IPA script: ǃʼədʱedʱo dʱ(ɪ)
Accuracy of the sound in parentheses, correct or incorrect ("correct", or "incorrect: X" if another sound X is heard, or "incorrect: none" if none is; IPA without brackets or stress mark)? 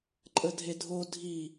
incorrect: i